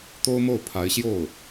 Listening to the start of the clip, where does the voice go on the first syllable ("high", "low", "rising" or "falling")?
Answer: high